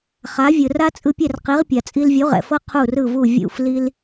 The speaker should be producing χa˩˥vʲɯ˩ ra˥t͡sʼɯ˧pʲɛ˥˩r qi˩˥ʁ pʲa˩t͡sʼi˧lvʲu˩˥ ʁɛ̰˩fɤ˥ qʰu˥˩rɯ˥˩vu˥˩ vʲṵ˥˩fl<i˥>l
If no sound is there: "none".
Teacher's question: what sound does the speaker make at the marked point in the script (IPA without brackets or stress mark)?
i˥